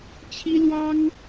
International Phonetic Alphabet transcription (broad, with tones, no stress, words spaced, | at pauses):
t͡ɕʰi˥lwɑ˥ŋ